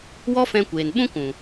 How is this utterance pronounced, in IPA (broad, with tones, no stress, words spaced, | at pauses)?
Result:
wɔ˦fɛ̃˧kʷeː˨n ɓũ˦kũ˨